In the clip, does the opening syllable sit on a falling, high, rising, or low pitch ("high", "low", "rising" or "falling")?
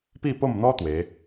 falling